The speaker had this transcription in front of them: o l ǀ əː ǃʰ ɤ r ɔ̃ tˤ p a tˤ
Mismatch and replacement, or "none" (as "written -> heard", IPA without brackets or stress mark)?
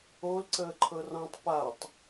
none